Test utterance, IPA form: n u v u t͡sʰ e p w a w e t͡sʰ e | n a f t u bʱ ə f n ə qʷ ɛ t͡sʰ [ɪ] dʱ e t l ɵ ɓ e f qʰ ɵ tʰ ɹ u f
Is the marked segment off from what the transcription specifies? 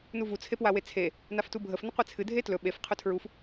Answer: yes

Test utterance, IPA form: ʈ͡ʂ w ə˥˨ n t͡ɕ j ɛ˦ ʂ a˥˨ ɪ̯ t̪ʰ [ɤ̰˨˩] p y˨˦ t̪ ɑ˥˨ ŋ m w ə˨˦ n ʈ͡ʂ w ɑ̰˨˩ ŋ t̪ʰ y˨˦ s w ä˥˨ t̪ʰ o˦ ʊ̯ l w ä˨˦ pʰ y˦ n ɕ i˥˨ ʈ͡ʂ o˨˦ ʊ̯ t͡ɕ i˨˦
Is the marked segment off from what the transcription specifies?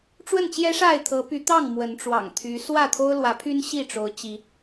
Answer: yes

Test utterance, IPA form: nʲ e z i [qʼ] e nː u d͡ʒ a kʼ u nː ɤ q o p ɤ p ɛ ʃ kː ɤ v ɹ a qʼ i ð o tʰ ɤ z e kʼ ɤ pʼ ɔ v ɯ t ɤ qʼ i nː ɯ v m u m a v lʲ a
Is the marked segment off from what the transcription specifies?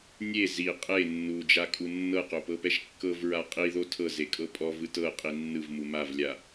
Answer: no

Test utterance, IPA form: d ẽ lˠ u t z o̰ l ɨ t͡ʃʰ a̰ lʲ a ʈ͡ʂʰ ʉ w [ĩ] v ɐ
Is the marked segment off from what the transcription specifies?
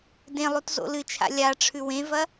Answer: yes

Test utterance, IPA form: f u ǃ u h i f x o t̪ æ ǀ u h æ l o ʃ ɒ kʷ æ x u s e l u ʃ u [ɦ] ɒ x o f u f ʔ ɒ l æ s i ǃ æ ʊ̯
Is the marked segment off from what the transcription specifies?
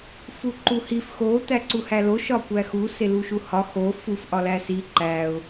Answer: yes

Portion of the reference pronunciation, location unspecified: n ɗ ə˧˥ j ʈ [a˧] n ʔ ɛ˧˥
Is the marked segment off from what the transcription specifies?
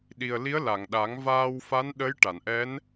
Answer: yes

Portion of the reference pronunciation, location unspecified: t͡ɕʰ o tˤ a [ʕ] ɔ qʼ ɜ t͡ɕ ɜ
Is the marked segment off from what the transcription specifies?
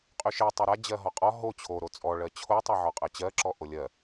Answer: no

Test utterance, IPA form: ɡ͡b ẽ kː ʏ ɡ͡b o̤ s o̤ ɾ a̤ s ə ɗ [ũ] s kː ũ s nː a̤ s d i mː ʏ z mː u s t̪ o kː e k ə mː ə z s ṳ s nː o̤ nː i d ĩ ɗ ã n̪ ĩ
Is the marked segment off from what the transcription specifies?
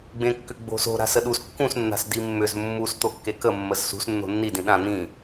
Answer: yes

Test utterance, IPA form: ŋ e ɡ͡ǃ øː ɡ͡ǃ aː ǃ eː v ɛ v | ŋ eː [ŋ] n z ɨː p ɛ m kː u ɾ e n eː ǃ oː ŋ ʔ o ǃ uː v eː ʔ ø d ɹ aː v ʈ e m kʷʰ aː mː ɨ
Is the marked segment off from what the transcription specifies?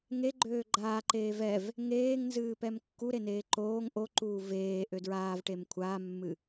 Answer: no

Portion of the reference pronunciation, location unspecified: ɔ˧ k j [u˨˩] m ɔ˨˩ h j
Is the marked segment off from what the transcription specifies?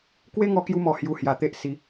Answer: yes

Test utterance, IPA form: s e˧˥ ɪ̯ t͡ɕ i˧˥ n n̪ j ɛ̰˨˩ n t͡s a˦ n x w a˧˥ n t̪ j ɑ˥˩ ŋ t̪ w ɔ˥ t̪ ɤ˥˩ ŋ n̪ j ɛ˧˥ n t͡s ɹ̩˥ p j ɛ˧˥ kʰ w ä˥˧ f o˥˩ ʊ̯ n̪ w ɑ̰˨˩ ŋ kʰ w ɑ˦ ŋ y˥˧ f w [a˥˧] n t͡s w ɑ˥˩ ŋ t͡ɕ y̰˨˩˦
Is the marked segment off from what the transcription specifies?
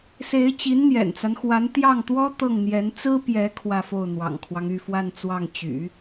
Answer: no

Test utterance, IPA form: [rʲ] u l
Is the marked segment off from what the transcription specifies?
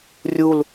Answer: no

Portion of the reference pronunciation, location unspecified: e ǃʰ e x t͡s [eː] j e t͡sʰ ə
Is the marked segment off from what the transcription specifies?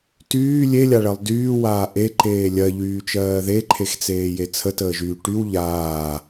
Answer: no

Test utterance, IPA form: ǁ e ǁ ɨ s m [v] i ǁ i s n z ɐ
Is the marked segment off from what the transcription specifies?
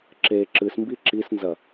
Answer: yes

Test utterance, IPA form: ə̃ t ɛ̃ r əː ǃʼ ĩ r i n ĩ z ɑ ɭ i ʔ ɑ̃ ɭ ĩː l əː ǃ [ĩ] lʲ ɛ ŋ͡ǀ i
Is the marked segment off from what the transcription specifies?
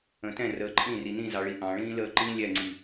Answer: no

